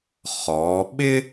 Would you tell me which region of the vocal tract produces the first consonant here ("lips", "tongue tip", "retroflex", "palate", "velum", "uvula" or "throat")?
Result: uvula